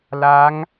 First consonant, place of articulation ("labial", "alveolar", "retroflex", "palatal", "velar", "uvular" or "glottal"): alveolar